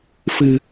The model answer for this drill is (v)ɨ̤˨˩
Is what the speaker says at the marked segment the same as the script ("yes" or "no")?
no